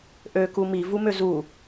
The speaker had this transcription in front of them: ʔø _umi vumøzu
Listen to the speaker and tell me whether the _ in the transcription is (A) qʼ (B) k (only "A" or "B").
B